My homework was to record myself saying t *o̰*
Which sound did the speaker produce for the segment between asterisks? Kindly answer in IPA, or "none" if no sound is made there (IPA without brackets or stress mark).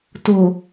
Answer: o